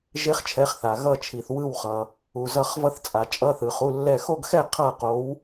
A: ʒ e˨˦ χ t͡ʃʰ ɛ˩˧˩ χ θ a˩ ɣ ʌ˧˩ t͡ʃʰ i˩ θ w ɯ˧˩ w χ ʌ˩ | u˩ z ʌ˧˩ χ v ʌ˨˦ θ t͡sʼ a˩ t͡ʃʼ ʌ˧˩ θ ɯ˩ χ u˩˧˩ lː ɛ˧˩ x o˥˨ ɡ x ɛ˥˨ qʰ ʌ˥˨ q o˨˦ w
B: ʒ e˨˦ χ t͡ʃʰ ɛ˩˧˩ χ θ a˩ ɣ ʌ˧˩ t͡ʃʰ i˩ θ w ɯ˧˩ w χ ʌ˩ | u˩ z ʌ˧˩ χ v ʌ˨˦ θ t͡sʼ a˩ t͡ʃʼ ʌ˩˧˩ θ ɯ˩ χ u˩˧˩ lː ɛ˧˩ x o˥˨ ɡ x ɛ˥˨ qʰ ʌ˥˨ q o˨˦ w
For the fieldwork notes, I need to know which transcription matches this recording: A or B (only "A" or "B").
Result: B